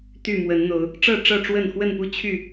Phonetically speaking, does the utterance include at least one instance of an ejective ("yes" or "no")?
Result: no